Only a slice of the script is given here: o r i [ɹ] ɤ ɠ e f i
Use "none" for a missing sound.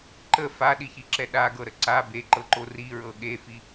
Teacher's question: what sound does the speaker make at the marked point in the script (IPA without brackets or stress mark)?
ɹ